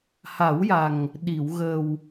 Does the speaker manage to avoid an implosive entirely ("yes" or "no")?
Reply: no